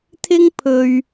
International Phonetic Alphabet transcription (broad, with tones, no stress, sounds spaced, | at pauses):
t̪ʰ ɪ˥ ŋ pʰ ɵ˧ ɥ